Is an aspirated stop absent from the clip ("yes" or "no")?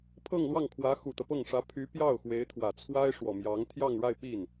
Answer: no